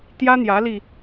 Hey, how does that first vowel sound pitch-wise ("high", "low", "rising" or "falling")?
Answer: high